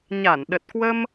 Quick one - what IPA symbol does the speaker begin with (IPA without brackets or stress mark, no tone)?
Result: ɲ